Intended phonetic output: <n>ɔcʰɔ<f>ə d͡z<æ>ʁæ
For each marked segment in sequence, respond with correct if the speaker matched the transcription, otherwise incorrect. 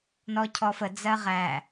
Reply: correct, correct, incorrect: ɜ

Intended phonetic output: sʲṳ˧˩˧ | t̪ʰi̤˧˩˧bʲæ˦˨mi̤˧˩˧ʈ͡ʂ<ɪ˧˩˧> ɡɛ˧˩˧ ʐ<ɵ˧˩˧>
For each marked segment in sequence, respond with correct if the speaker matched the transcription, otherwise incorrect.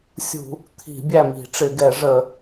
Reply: correct, incorrect: ə˧˩˧

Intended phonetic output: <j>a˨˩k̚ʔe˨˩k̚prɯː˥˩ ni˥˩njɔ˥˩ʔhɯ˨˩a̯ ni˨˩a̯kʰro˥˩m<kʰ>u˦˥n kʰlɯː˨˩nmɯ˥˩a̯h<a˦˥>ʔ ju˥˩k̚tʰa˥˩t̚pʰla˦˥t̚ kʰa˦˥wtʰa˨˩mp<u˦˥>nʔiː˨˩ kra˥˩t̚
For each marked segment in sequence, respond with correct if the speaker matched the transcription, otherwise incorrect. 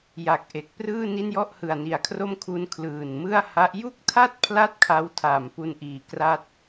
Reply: correct, correct, correct, incorrect: u˧

